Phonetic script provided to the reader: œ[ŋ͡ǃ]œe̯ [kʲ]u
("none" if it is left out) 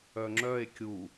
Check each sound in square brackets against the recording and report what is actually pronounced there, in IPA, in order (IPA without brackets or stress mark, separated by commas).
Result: ŋ͡ǁ, kʲ